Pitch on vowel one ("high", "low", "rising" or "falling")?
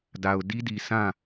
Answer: low